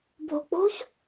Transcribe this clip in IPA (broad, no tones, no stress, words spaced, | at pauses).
bʱo̤k͡po̤ç